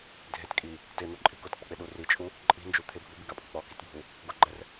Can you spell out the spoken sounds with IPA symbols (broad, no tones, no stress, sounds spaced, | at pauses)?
dʱ e t kʼ i | t ɪ n̪ o ǃʼ i̤ k ʊ t k͡p ɪ k͡p ɪ ɗ u r i t͡ʃʼ u | ǃʼ i̤ n d͡ʒ u t̪ʰ ɪ bʱ u b i ɡ a pʼ ʊ k͡p ɔ k i t bʱ u | ɡ ʊ ɡ͡ǃ ɛ r